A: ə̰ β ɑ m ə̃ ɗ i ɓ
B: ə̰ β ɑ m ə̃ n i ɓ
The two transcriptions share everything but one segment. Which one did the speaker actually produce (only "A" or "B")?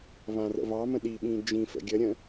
A